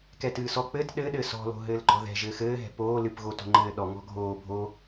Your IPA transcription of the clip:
k ɛ t ɨː s ɔ k͡p ɘ t ɗ ɘ ɗ ɘ s ɔ̤ l o̤ ɦ ɘː l ɡ͡ǃ ɔ ð ɛ̤ ʒ ɘː x ɘː ɦ ɛ̤ p oː l ɨ p ɣ o t o̤ ŋ͡ǃ ɘː ɗ ɔ ŋ ɔ̤ ɡʱ oː bʱ o

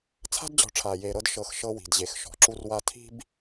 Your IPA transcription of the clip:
t͡sʰ a̤˦ d d͡ʑ ɔ̤˨ ʈ͡ʂʰ aː˨ j eː˨ ɾ ɤ˦ d ʃ ɤ˨ x ʃ ɤ˦ w i̤˨ d ʑ e˨ x ʃ ɔ̤˨ ǁ u˦ r w a˦ tʰ i̤˦ b

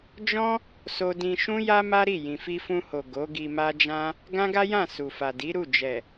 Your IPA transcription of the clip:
d͡ʒ ɔ̃˦ | s o˧ d ĩ˧ ʃ ũ˦ j a˦ m a˦ ɾ i˦˨ j ĩ˨ f i˧ f ũ˧ h o˨ ɡ o˨˦ ɡ i˧ m a˦ d͡ʒ ã˦ | ɡ ã˦ ɡ a˦ j ã˦˨ s u˨ f a˨ d i˨˦ ɾ u˦˨ d͡ʒ ɛ˨

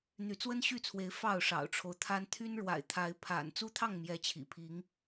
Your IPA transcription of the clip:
n̪ y˨˦ t͡s w ə˦ n ɕ y˥˨ t͡sʰ w e˨˦ ɪ̯ f ɑ˥˨ ʊ̯ ʂ ɑ̰˨˩ ʊ̯ ʈ͡ʂʰ o˦ ʊ̯ t̪ʰ a˦ n t̪ʰ y˦ n ɻ w a̰˨˩ ɪ̯ t̪ʰ a˨˦ ɪ̯ pʰ a̰˨˩ n t͡s u˦ t̪ʰ ɑ˥˨ ŋ m j ɛ˨˦ t͡ɕʰ ḭ˨˩ pʰ i˨˦ ŋ

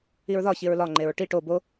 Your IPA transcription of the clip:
i ɹ ð ɒ ç i ɹ l ɒ ŋ͡ǃ e ɹ ʈ i ʈ o b o

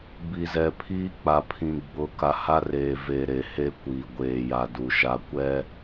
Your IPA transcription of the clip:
b i˨ z ɛ˨ pʰ iː˦ k͡p a˨ pʰ ĩ˨ ɡ͡b ʊ˨˦ k a˨ h a˦ r eː˨ v e˨ ɾ e˨ h e˦ kʷ iː˨ ɡʷ eː˨ j a˨ d u˨ ʃ a˦ kʷ ɛ˦

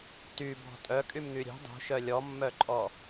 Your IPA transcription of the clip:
t y b ɔ̤ tʼ œ kʼ y m ŋ y ɾʲ ṳ dˤ ṳ ʃ œ lʲ ɔ mː œ ǃʼ ɔ

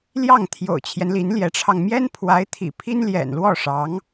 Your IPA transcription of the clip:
l j ɑ˥˩ ŋ t̪ʰ j o̰˨˩ ʊ̯ t͡ɕʰ j ɛ˦ n l i˧˥ n l j ɛ˧˥ ʈ͡ʂʰ ɑ˧ ŋ m j ɛ˥ n pʰ w a˧˥ ɪ̯ t̪ʰ ḭ˨˩ pʰ i˥ n l j ɛ̰˨˩ n l w ɔ˥˩ ʂ ɑ˧˥ ŋ

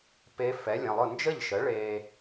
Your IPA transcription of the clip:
p e˧˥ f ɛ˩˥ lʲ ɐ̃˩˧˩ lˠ ʊ˥˩ n d͡ʒ ə˥˩ ʎ ʃ ə˩˥ ɭ e˧

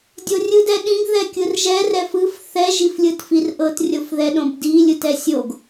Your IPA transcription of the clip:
dʲ o rʲ ɯ d ɛ ɗ ĩ ɡ ð ɛ kʲ ɯ r ʒ ɛ r ɛ f ɯ f θ ɛ ʒ i f lʲ ɯ t f i r ʔ ɤ t rʲ o f ð ɛ ɗ õ b d i lʲ ɯ t ɛ sʲ o ɡ

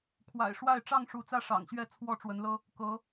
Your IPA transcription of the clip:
kʰ w a̰˨˩ ɪ̯ ʂ w a˥˨ ɪ̯ ʈ͡ʂ ɑ˥˨ ŋ ʂ u˨˦ t͡s ä˦ ʂ ɑ̰˨˩ ŋ ɕ ɥ ɛ˥˨ t͡sʰ w ɔ˥˨ ʈ͡ʂ w ə˨˦ n l ɤ˦ | k ɤ˨˦

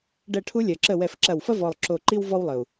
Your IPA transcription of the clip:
ɖ ɛ˧˩ ʈʰ u˧ lʲ ɜ˩ ǁ ə˧˩ w ɛ˧˩ f ǁ ɐ˧˩ w f ɐ˥ v ɔ˧˩ lˠ ǁ o˧˩ ǃ i˥ w v ɔ˧ w lˠ ə˩ u̯

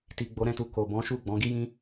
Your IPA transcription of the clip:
t i˨ ɡ͡b o˨˦ ɾ ɛ̃˦˨ t u˧ k o˨ b ɔ̃˨˦ ʃ u˦˨ ɡ͡b ɔ̃˨˦ ɡ i˦ j ĩ˦

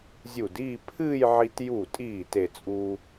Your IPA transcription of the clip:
zʲ u˧˩ d iː˥˧ pʰ ɨː˥˧ j ʕ i˧ t j u˧˩ tʼ iː˧˩ t e˥˧ t͡sʼ uː˥

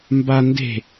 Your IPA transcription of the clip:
m b a n d e̤

